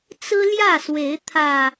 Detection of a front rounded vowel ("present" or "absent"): absent